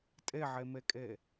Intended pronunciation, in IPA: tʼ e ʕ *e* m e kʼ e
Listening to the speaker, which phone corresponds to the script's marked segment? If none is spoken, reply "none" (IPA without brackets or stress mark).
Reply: e